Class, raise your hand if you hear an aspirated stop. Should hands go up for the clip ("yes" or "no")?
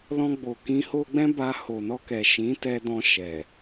no